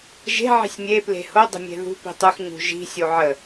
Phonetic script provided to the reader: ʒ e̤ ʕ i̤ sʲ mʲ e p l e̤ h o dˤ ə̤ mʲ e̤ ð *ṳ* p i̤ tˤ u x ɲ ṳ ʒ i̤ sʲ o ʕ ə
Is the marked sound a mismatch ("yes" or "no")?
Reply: no